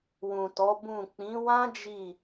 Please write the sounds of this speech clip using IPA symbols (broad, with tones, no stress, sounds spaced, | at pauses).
w ũ˨ t ɔ˨˦ b ũ˦˨ k͡p ĩ˨˦ w ã˦ d͡ʒ i˦˨